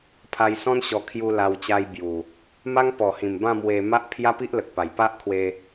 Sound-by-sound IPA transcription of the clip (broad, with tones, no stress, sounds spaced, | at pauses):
pʰ a˧ j s ɔ̃˦ n ɕ ɔ˧ kʰ j u˧ l a˧ w t͡ɕ a˧ j b j u˨˩ | m a˦ ŋ p ɔ˨˩ h ĩ˨˩ m b ã˥˧ m w e˧ m a˦ ʔ pʰ j a˦ p i˦ ʔ l ə˨ k̚ p a˨˩ j p a˦ ʔ kʰ w e˧